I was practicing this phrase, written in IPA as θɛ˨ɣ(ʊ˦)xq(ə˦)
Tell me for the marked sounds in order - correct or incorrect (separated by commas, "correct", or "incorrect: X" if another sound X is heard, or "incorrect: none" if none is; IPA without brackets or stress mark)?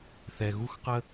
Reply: incorrect: u˦, correct